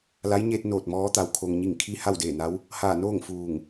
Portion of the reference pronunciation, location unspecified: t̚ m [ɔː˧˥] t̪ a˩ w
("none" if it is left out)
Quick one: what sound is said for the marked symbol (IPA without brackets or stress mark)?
ɔː˧˥